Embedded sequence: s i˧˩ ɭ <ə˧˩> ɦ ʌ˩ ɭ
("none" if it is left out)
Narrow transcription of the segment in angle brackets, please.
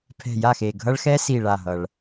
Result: a˧˩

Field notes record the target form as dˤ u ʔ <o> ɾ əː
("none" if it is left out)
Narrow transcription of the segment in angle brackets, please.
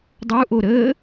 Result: o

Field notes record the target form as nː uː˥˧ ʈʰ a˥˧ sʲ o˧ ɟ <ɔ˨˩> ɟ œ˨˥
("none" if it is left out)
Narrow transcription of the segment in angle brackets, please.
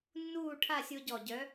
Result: ɔ˨˩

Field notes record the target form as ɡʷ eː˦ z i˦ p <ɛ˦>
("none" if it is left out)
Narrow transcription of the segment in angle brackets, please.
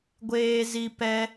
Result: ɛ˦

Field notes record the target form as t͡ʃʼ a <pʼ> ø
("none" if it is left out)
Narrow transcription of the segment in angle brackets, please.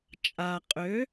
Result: qʼ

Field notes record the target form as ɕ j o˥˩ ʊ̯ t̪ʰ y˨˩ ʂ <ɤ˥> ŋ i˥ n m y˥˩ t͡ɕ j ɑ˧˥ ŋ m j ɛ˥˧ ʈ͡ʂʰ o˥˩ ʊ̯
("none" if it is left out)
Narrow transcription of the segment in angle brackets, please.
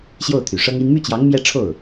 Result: ɤ˥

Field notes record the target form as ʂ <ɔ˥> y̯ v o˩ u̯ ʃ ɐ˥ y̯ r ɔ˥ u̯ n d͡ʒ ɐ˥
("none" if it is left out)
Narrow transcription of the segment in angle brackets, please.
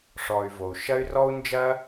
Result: ɔ˨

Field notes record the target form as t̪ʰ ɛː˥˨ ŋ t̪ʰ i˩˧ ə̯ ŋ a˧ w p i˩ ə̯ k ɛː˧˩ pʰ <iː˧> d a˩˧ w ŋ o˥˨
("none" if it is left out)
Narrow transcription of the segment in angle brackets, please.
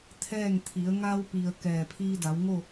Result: iː˧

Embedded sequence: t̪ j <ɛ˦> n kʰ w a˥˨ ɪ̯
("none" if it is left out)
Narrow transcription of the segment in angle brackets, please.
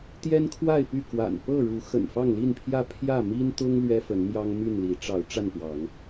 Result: ɛ˦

